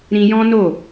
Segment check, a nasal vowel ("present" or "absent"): present